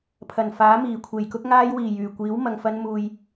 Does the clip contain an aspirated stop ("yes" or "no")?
yes